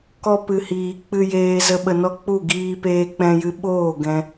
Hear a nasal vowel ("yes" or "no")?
yes